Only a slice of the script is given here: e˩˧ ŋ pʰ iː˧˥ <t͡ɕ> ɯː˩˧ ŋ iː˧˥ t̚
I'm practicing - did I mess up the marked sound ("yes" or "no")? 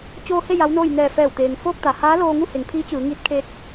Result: no